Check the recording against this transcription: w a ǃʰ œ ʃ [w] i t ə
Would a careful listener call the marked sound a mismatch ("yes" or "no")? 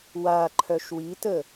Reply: no